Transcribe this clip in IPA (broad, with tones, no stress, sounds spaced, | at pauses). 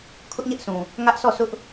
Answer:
kʰ ʊ˦ ʔ ɲ ɛ˦ ʔ sʰ ũ˨ | ŋ ä˦ ʔ sʰ ɔ˦˨ sʰ ʊ˦ ʔ